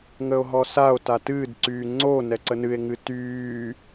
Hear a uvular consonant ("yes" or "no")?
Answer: no